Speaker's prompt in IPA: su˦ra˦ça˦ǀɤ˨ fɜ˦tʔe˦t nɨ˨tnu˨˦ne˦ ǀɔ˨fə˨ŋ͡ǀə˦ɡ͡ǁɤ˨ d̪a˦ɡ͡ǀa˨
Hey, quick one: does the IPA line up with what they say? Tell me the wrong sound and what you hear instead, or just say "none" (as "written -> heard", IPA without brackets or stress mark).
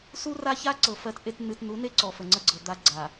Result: ɡ͡ǁ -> ɡ͡ǀ